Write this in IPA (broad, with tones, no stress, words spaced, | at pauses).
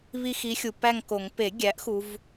βi˥˧xi˧˥xʲu˨ pæ˥˧ŋko˨˩˦ŋ pe˨˩˦ɡʲæ˩˥ʔ xu˧˥v